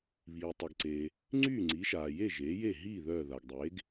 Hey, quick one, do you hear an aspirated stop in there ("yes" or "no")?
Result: no